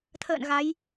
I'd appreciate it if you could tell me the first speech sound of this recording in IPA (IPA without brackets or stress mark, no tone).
t̪ʰ